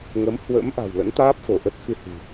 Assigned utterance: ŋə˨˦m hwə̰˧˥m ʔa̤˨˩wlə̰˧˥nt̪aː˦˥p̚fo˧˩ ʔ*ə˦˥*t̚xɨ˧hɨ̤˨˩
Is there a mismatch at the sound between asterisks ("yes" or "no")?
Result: no